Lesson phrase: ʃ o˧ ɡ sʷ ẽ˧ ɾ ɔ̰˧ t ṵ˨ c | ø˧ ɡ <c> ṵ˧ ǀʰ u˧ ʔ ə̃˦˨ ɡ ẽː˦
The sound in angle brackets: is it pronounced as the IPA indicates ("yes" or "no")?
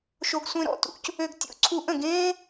no